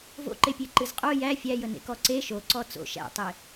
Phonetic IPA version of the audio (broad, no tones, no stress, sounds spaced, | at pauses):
v o̰ ǃ e pʲ e ǃ ɨ z qʼ o j æ fʲ æ j ə n ḛ k ɔ ǀ e ʃ o ǀ ɔ t͡s o̰ ʃ æ̰ tˤ e